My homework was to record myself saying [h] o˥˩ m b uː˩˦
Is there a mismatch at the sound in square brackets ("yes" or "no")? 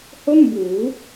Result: no